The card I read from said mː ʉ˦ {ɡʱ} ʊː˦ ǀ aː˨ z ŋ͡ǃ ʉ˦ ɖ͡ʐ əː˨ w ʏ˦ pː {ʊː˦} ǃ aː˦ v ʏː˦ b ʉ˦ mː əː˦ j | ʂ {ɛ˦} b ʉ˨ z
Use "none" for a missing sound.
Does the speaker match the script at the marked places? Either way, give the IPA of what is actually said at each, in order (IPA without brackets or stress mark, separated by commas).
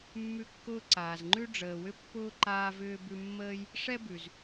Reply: kː, ʊː˦, ɛ˦